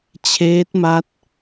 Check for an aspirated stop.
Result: present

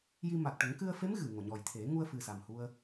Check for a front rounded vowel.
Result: absent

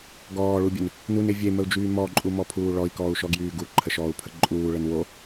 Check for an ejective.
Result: present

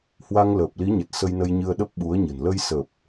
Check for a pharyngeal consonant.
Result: absent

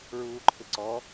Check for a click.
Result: present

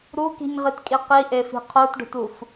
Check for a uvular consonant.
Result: present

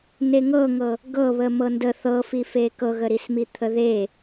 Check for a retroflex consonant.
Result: absent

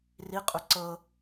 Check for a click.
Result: present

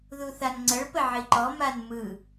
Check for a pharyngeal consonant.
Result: present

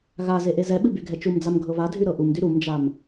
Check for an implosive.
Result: present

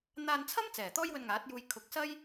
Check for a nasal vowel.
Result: absent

